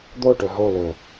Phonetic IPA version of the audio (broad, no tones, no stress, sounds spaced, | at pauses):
d̪ o ʈ ɵ ɦ o l ɵ